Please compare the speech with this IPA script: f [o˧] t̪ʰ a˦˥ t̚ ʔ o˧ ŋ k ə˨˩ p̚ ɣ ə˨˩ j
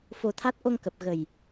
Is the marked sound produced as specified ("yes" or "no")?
yes